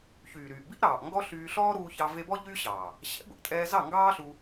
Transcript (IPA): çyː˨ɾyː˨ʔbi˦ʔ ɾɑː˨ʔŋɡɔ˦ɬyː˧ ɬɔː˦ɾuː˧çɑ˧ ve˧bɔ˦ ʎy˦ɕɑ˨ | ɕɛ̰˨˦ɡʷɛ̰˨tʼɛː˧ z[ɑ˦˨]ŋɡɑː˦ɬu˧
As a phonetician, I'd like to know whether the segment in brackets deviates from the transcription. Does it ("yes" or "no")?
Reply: no